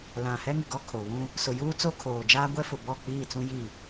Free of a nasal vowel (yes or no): no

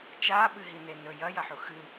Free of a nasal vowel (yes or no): yes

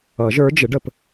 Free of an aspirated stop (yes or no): yes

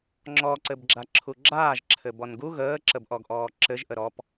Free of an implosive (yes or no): yes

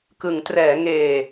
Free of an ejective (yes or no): yes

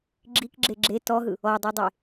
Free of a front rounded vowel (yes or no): yes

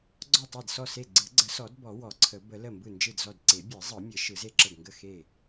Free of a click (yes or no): no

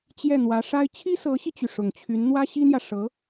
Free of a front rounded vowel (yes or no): no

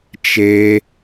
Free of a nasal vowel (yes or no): yes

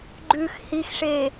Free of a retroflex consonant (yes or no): no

